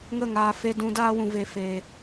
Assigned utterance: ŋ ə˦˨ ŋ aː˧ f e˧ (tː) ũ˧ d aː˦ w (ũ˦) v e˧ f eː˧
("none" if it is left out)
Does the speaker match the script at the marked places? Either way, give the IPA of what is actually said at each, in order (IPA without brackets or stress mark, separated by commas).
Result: d, ũ˧